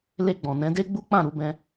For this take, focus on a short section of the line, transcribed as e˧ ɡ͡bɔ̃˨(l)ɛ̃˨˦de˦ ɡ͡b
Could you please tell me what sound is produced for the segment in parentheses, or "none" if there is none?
n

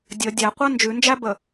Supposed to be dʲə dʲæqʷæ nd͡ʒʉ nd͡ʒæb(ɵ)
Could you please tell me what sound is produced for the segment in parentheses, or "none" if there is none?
ə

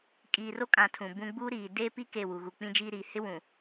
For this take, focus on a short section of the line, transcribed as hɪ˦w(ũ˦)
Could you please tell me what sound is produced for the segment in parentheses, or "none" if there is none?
ũ˨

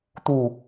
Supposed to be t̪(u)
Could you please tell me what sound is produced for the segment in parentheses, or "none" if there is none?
u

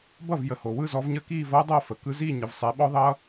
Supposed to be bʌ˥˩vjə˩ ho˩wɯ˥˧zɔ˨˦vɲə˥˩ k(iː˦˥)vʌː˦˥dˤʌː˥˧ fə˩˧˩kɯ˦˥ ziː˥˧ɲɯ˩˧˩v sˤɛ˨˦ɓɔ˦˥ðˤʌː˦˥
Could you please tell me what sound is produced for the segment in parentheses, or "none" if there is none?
iː˥˧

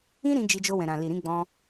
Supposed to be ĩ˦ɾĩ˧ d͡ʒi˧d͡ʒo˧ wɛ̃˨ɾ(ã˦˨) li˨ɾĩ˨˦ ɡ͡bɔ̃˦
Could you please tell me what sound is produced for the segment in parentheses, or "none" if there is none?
ã˨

